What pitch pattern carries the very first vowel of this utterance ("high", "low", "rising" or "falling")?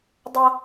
high